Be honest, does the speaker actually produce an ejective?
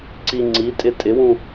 yes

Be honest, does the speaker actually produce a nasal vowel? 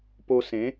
yes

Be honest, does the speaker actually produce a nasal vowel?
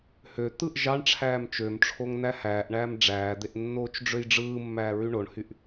no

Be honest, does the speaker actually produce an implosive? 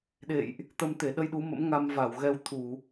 yes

